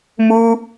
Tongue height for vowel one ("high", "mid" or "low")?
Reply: high